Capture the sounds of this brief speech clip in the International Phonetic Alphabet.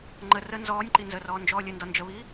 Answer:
ŋ͡ǃ ə r ə n z ɔː nʲ ǃ i n z ə r ɔː n d͡ʒ ɔː lʲ ə n d ɒ n d͡ʒ ə β iː

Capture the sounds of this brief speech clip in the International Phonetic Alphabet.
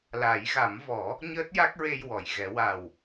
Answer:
l a˨˩˦ j ɣ a˨˩˦ m v ɔ˨˩˦ | ɲ əː˦˥ t̚ j a˦˥ k̚ ɹ e˧ j w ɔ˨˩˨ j ɣ ɛ˨˩˦ w a˨˩ w

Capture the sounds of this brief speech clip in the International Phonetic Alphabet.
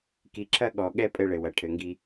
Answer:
k i˨ ǁʰ ɐ˦ ɠ ɔ˨ ɠ ɛ˦ pʼ ɘ˦ ɭ ɘ˨ w ɐ˨ ʈʰ ɘ˨˦ ŋ ɡ i˦

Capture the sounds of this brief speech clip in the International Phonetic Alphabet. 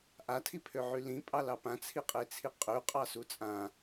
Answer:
ʔ a tʰ i pʰ ø ʕ y l ĩ pʼ ɑ l ɑ p ã t͡sʰ i qʼ e t͡sʰ i qʼ ø qʼ ɑ s u t͡sʼ ã

